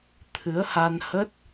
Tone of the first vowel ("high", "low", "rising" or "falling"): rising